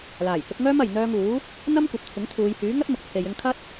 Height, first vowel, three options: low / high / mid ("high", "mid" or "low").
low